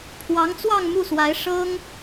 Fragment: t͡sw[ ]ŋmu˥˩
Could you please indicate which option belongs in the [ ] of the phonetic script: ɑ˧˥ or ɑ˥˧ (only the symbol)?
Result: ɑ˥˧